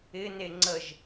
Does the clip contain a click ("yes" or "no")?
yes